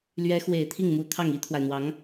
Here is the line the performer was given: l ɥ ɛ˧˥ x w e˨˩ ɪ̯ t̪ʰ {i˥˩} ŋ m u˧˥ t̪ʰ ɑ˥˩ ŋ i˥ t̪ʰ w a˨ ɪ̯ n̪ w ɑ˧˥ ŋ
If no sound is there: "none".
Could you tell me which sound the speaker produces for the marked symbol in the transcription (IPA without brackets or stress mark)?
i˥˩